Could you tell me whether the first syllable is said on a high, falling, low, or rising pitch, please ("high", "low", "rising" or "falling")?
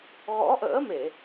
rising